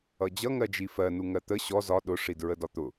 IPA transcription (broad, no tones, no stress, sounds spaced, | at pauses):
ʌ d͡ʑ ʌ ŋ ɜ d͡ʒ i f ɜ n u ŋ ɜ t̪ ə ɕ ɔ z ɒ ɗ ʊ ʂ i d ɹ ə d ɒ t̪ ʊ